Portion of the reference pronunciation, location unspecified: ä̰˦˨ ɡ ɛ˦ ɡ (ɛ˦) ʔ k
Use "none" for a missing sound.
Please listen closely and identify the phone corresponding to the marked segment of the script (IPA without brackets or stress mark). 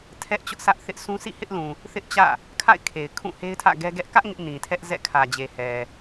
ɛ˦